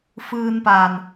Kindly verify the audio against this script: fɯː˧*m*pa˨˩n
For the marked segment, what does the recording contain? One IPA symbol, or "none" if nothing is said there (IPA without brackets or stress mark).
n